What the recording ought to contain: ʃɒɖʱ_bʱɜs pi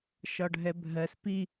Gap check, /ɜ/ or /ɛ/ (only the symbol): ɛ